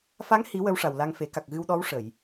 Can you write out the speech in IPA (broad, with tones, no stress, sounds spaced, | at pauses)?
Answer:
f a˧˥ ŋ h i˨˩˦ w ə˧˥ w ʂ a˨˩ w l a˧ ŋ f e˨˩˦ k a˨˩ k̚ ɣ ɨ˧ w ɗ ɔ˧˥ w ʂ ə˨˩˨ j